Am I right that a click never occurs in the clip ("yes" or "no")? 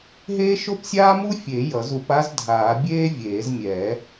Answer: yes